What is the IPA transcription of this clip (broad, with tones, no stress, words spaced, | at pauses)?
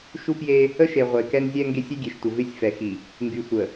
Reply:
ʃu˦pje˦ | ə˦ʃe˨ ʁʷe˨kɛ˦nzʲɛ˦ŋɡe˦sʲ y˦ɡʲe˨ʃtʷə˨ vɪ˦sʲ fɛ˨xi˨ | ŋɡy˨sʷə˨